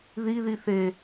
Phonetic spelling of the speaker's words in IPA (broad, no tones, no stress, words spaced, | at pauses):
ði ðiθe